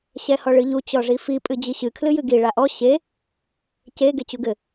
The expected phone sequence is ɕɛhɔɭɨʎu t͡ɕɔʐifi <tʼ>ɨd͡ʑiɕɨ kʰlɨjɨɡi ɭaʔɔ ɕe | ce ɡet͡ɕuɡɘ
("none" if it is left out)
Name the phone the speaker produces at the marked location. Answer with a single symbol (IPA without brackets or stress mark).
pʼ